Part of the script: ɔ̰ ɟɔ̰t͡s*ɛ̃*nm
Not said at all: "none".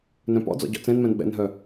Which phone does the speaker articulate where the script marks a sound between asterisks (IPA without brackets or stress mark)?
ɛ̃